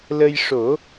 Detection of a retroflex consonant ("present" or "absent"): present